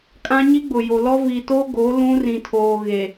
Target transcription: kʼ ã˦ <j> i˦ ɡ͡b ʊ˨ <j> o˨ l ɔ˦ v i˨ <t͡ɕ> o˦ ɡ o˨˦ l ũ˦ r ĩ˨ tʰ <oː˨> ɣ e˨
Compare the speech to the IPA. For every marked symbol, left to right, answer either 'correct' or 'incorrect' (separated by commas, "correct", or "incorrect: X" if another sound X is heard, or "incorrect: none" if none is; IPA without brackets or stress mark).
incorrect: ɲ, correct, incorrect: t, correct